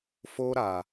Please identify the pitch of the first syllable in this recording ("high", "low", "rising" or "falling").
high